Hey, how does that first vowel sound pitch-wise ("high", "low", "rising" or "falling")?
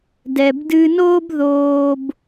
low